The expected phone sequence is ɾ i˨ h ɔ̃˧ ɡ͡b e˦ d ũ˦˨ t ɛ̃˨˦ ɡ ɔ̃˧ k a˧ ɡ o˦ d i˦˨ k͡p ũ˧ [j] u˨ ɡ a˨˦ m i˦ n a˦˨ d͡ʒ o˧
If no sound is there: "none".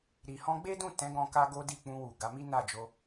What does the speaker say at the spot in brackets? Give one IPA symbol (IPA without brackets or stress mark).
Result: w